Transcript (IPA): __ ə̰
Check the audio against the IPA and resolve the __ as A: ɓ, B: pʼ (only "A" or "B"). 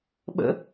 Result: A